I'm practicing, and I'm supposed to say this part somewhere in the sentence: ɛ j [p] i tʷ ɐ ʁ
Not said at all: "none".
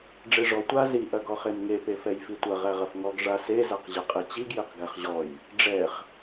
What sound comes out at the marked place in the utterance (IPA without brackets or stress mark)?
f